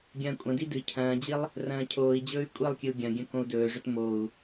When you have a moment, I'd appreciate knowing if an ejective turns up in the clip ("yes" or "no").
yes